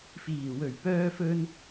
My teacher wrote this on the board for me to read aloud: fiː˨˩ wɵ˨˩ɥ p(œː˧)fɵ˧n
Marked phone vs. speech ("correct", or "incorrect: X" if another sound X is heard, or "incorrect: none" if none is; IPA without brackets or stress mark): correct